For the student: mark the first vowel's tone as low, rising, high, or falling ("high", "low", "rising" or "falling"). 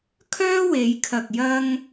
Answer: high